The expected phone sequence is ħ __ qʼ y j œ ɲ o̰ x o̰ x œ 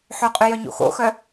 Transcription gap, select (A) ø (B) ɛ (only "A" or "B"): A